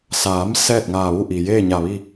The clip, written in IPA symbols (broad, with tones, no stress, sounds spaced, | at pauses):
s aː˩˧ m s ɛː˥˨ t̚ ŋ aː˧˩ ʋ u˥˨ ʔ i˩ j eː˥˨ ɲ a˧˩ ʋ i˥˨